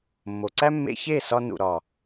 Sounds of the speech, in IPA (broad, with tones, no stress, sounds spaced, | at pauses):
mː o˨ ǀ æ˦ mː ḛ˧ ç e˦˨ s ɒ˧ n ṵ˨ ɾ ɒ˨